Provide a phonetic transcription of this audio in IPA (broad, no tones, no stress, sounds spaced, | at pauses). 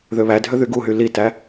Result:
ð ø β æ dʱ ø ð y ɡ u ɦ y l i t æ